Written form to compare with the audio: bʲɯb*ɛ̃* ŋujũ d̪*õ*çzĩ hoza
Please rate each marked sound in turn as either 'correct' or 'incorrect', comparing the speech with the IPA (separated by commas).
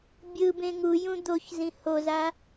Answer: incorrect, incorrect